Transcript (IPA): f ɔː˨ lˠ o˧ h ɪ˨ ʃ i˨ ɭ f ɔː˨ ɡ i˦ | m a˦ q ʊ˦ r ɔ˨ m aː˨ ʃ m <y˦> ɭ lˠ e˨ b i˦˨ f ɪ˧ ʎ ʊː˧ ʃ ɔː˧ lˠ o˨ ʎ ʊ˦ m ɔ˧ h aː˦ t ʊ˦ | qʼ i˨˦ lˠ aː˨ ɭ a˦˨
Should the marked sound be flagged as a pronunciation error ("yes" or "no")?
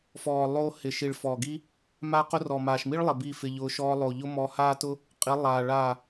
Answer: yes